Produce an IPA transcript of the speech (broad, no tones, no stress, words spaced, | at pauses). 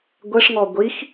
ɡʷɛʂŋɔ ɡʷix